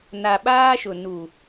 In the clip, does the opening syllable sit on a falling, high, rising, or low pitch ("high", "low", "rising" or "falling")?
low